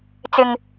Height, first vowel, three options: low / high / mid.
high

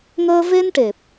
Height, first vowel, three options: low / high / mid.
mid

